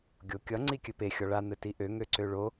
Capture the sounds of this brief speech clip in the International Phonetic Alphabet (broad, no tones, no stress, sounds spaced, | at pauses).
ɡʲ o kʲ ʌ ŋ͡ǀ i kʲ ɘ p e xʲ ɔ ɭ a n̪ ɘ t i ʔ ø ŋ ø ǀ ø ɭ o